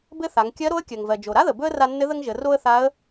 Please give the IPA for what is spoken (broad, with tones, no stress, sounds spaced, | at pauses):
b ɘ˥ θ a˩˧ ŋ kʲ ɜ˧˥ ɾ o˧˥ ə̯ kʲ ɜ˩ ŋ v ɜ˩ d͡ʒ o˩ ɾ a˥ ð ə˩ b ɵ˥ ə̯ r a˧ nː ɘ˧˥ ð ə˥ ŋ ʒ ə˩˧ r o˥ ə̯ θ a˧˥ ə̯